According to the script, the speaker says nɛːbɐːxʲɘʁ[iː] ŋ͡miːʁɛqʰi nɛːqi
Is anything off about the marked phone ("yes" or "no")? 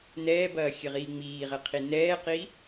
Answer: no